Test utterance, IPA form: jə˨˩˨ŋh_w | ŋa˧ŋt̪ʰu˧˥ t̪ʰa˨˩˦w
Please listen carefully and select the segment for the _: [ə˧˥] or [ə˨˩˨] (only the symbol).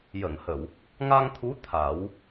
ə˨˩˨